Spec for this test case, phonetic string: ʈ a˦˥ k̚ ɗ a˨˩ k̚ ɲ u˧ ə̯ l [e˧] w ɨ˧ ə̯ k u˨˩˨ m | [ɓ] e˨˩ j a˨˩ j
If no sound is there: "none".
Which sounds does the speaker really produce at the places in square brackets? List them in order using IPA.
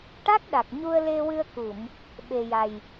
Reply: e˧, ɓ

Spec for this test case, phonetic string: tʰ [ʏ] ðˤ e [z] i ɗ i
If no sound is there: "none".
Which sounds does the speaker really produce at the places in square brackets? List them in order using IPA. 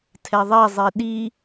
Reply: ɛ, zˤ

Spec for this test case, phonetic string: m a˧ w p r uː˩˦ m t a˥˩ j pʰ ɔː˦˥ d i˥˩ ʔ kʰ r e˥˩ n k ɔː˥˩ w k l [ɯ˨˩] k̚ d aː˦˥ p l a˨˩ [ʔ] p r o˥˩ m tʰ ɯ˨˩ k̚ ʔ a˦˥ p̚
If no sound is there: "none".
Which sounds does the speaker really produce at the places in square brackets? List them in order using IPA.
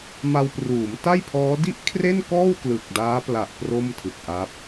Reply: ɯ˨˩, ʔ

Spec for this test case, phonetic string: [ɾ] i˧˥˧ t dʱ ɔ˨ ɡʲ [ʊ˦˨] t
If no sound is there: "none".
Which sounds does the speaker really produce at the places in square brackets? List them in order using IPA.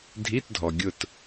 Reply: dʱ, ʊ˦˨

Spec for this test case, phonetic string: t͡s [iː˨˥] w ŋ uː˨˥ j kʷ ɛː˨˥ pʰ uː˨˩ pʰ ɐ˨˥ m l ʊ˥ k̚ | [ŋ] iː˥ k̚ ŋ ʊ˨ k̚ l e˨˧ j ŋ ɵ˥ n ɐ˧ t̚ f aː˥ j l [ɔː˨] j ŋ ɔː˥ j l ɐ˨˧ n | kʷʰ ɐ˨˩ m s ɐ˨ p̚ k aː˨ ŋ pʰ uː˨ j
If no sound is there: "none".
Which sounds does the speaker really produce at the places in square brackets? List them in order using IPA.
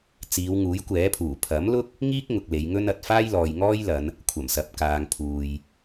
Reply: iː˨˧, ŋ, ɔː˨

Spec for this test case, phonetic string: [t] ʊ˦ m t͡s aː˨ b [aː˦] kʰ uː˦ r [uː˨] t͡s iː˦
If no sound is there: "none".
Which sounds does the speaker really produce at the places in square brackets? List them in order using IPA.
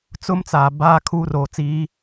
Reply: t͡s, aː˦, oː˨

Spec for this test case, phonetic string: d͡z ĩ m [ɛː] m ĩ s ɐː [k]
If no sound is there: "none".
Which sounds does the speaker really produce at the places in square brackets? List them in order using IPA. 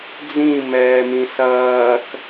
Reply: ɛː, k

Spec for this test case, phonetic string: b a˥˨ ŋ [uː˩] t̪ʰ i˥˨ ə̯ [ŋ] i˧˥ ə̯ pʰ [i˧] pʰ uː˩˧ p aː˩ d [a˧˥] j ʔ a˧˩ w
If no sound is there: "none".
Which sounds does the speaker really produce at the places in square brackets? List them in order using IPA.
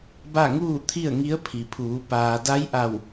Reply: uː˥˨, ŋ, i˩, a˧˥

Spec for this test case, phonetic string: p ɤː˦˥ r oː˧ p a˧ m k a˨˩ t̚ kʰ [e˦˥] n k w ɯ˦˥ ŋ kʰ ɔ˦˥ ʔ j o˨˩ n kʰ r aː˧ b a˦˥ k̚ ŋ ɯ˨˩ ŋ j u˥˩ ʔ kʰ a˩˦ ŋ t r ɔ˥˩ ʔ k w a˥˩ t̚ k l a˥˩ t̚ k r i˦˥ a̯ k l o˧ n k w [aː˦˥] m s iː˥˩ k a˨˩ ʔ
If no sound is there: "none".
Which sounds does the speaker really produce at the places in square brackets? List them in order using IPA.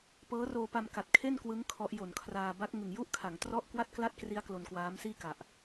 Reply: e˥˩, aː˦˥

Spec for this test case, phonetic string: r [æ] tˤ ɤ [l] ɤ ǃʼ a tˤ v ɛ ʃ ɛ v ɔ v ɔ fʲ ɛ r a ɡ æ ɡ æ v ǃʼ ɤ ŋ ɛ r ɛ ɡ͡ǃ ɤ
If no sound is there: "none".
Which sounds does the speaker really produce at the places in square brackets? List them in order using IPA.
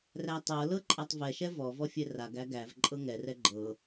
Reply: æ, l

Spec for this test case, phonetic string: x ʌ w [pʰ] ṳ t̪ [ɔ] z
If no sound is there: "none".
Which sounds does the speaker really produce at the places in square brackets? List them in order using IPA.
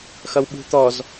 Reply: ɓ, ɔ

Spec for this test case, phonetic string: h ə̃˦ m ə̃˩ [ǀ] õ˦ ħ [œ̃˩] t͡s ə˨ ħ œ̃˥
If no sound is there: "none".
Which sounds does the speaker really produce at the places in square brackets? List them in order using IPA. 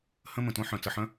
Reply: t, œ̃˩

